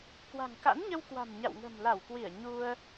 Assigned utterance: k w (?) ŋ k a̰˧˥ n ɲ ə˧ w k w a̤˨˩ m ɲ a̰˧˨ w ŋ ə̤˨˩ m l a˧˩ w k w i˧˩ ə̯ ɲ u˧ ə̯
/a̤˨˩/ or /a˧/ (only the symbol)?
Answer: a̤˨˩